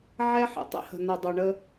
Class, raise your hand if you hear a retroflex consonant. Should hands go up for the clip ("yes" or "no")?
yes